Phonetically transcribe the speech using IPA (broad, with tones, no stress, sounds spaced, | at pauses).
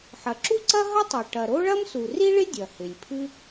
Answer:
ħ ɐ˩ ǁ u˥ ǀ ɐ˥ ɦ ɐ˥ tˤ y˩ ʈ ɐ˩ ɾ o˥ ɭ ɐ˥ m s u˩ r i˥ ɭ ɪ˥ dʲ ɐ˩ h ɪ˩ lʲ pʰ ɨ˥